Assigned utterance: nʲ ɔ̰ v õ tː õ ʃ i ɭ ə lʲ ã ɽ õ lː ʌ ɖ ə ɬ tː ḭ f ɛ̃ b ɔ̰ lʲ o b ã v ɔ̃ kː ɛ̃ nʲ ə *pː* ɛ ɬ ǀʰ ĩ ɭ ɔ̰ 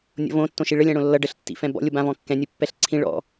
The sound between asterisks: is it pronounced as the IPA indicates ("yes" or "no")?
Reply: yes